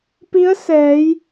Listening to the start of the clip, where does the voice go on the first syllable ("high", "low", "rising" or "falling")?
rising